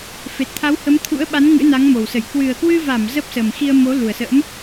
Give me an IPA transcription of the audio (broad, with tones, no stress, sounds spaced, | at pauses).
f e˨˩ t̚ t̪ʰ a˨˦ w h ə˨˦ m t̪ʰ ṵ˧˥ ə̯ ɓ a˨˦ n ŋ ɨ̰˧˥ n a˨˦ ŋ m o˨˩ w s ə˧˩ j k w ɨ˨˩ ə̯ k w ɨ˧ v a˧˩ m z ə˦˥ p̚ s ə˨˩ m x i˧ ə̯ m o˨˦ l u˨˩ ə̯ s ə̰ː˧˥ m